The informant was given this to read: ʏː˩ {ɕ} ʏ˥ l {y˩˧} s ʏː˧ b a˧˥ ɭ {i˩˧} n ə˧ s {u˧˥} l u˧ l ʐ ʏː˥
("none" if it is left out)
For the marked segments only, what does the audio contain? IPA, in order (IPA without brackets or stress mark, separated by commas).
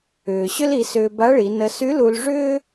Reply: ɕ, i˩˧, i˩˧, y˧˥